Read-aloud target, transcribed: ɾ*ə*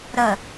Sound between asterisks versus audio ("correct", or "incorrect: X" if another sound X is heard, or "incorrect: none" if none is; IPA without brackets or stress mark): correct